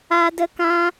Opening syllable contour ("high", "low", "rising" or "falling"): high